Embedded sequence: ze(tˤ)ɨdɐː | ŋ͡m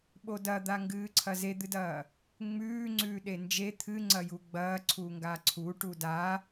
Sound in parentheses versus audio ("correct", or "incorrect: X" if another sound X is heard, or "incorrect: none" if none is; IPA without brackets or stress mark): incorrect: d̪